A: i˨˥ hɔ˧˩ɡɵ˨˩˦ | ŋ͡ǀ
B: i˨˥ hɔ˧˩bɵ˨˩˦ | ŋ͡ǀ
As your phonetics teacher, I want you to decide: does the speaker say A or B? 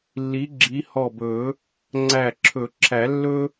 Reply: B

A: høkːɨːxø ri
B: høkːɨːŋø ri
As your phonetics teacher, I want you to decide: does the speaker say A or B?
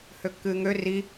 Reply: B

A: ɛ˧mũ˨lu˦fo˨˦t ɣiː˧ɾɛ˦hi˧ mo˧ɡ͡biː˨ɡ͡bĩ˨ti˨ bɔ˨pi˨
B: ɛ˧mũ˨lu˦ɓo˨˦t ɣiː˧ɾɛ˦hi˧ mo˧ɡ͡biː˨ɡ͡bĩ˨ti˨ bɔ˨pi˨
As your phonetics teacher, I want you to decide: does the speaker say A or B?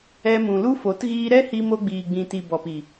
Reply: A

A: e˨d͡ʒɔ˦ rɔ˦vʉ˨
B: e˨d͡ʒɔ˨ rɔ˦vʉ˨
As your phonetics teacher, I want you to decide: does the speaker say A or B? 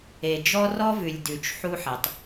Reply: A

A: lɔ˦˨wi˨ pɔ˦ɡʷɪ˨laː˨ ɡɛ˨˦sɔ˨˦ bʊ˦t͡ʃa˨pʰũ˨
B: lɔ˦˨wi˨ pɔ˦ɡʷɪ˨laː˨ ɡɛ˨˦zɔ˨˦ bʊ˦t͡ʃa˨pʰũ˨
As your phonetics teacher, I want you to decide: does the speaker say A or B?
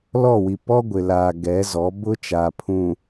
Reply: B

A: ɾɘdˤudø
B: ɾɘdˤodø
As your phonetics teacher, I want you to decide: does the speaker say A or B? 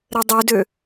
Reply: A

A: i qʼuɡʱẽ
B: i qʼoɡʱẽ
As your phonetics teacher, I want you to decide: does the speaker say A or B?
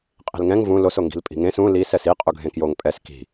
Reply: A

